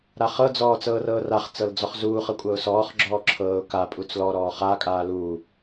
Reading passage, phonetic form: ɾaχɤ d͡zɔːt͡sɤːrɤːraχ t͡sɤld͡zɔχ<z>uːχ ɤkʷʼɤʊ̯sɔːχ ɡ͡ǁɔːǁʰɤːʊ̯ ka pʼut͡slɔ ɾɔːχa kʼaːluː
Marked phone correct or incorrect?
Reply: correct